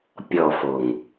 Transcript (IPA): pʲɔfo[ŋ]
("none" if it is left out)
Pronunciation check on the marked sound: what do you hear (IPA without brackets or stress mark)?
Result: ŋ